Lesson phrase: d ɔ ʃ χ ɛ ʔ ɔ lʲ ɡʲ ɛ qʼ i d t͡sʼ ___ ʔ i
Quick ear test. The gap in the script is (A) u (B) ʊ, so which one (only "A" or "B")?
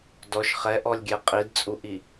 A